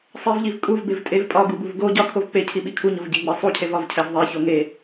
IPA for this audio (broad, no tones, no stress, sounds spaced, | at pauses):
sˤ e v ʎ i v kʼ u v b e v tʼ e v pʼ ɒ ɡ u b u v ɡ o ɟ ɒ kʰ o v k͡p e cʰ i ɓ i kʰ u ɲ o v ɟ e ɡ͡b e sˤ u cʰ e v ɒ v cʰ æ v ðˤ e ç o ŋ e